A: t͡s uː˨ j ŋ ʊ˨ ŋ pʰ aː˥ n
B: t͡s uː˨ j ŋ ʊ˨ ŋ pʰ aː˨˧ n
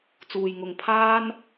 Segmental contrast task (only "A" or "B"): A